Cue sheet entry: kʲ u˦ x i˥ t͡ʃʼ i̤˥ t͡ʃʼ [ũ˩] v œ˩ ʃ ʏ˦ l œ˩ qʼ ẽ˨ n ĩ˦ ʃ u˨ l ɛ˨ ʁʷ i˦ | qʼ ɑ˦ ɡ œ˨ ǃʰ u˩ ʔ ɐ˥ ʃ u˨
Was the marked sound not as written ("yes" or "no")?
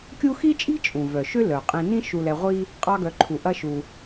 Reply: no